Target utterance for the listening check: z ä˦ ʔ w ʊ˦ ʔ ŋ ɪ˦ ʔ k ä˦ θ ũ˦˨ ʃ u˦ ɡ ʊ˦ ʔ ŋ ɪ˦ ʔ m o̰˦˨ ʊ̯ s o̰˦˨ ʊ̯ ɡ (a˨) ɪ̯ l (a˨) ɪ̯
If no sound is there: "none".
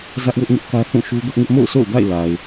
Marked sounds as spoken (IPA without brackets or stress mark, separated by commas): a̰˦˨, a˨